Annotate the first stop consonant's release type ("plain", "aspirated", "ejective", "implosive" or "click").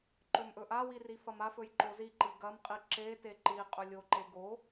click